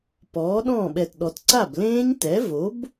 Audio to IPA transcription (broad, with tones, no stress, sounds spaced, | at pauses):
p ɔː˩˥ ɗ ɔ̃ː˥˩ ɓ ɛ˨˩ t ɗ ɔ˩˧ t ǀ a˥˩ b l ẽː˦˥ ɲ t ɛ˩˥ v o˩˥ b